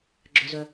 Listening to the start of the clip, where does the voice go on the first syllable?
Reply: high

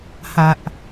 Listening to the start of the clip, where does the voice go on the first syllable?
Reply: low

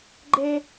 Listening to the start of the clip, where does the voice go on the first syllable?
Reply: high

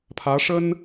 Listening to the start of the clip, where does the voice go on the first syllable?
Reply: rising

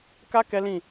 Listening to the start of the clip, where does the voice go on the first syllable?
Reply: high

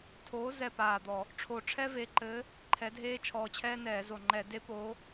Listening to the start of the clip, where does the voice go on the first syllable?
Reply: rising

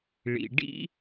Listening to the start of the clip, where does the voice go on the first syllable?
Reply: low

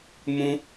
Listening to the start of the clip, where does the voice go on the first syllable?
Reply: high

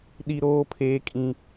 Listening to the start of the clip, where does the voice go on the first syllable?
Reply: high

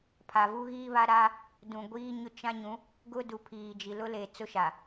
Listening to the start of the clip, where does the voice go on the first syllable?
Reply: low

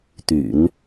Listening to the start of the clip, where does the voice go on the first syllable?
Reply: low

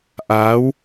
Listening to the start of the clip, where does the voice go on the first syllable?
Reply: rising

